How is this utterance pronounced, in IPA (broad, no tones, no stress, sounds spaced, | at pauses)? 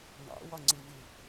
n̪ ɑ̰ w ɒ ŋ͡ǀ ɪ v ɪ